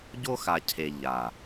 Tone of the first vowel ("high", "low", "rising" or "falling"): high